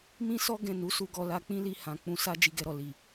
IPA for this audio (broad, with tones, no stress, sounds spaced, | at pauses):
m ĩ˦ s ɔ˦ ɡ ɛ̃˦˨ n u˨˦ s u˧ ɡ ɔ˧ l a˧ k͡p ĩ˦ l i˧ h ã˨ k͡p ũ˧ s a˦ d͡ʒ i˧ ɡ ɛ˧ ɾ ɔ˨ l i˨